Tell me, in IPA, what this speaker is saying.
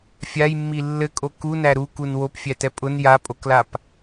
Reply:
fʲ a j mː i lː ɘ kʼ o k u n æ ɾ u k u n w o p fʲ æ t ɛ pʼ ʊ n j a pʼ o k l a p

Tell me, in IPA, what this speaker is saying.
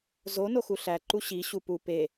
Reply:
z o n o x u ɬ æ ǃ u ɕ i ɕ u p u p e

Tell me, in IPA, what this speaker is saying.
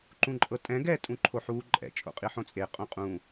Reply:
ǃ ũ ǃʼ ɤ tʼ ɛ̃ ɡ ɛ tʼ ũ ǃʰ o ħ uː ǃʼ ɛ̰ t͡ʃʼ o̰ qʼ i ħ õ t͡sʼ e qʼ õ qʼ ũː

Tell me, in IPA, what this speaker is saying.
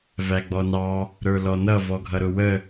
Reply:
v æ ɡ͡b ɔ n ɑ | ɾ ə˞ l ɔ n ʌ v ɔ ɡʱ ʌ ɾ ʊ w ə

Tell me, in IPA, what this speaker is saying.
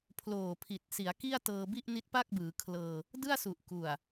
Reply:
pʰ l oː˨˩ pʰ i˨˩ t̚ s i˩˦ a̯ k i˥˩ a̯ t ɤː˧ b i˥˩ ʔ n i˦˥ t̚ p a˥˩ k̚ b ɯː˩˦ kʰ l ɤː˧ | d ɯ˥˩ a̯ s u˨˩ ʔ k u˨˩ a̯

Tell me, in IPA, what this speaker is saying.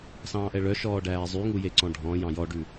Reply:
s ɑ̃ː ʔ ɛ ɭ œ ʃ ɔː ɖ æː zˤ y ŋ u j e ǀ ɔ̃ ɖʱ ɔ̃ j ɑ̃ j ɔ ɖ ʉ

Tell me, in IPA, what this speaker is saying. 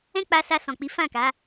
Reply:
ɛ̃˦ k͡p a˧ s a˧ s ɔ̃˨ k͡p i˨˦ f ã˦˨ k a˨˦

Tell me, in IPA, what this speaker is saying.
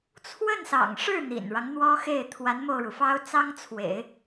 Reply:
t͡sʰ w ə˥˩ n s ɑ̰˨˩ ŋ ʂ ɻ̩˥˩ n̪ ḭ˨˩ n ɻ ɑ˦ ŋ n̪ w ɔ˥ x e˥˩ ɪ̯ t̪ʰ w a˧˥ n m o˧ ʊ̯ ɻ u˩ f ɑ˥ ʊ̯ t͡s ɑ˥ ŋ t͡sʰ w ḛ˨˩˦ ɪ̯

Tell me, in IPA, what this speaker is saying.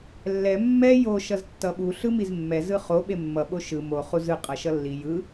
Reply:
lː ɛ mː ɛ j o ʃ ʌ z tː ʌ ɓ u ɬ ɯ m i z mː ɛ z ɯ χ o ɓ e mː ʌ ɓ o ʃ ɯ m o χ u z ɯ qʼ ʌ ʃ ʌ lː i j ɯ

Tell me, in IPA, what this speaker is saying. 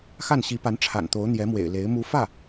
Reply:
x a˥˩ n ɕ i˧˥ p a˧˥ n ʈ͡ʂʰ a̰˨˩ n t̪ o˧˥ ʊ̯ n̪ j ɛ˧˥ m w ḛ˨˩ ɪ̯ l e˧˥ ɪ̯ m u˧˥ f ä˥˩

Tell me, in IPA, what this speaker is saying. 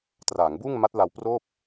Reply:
t r aː˩˦ ŋ b uː˥˩ ŋ m a˦˥ t̚ l a˧ w p r oː˥˩ p̚

